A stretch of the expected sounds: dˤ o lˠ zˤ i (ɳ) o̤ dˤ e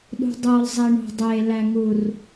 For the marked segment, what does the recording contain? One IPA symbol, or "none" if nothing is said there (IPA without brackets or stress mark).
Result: ɳ